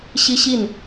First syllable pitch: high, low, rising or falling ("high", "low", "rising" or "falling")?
high